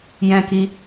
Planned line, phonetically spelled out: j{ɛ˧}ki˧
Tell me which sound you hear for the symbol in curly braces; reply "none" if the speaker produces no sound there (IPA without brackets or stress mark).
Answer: ɛ̃˧